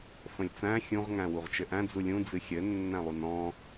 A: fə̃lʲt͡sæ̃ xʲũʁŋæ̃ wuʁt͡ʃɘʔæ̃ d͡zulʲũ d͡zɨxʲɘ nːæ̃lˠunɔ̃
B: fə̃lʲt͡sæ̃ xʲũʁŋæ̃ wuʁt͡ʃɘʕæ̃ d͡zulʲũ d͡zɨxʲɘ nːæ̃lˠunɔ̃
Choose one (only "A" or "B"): A